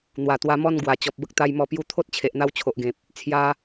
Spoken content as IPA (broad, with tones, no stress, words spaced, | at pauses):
n̪wa˨˩t̪wa˧ mɔ˥˧n ɡwa˨˩ t͡ɕɔ˨p̚bə˦k̚t̪a˧jmɔ˧ pju˧t̪ʰo˦t̚ t͡ɕʰe˨ʔn̪a˧wt͡ɕʰo˨ʔɡẽ˨p̚ | t͡sʰja˧